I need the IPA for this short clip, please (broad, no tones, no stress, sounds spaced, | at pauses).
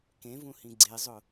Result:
k ẽ v ũ h ĩ ɡ͡ǀ e zˤ ʊ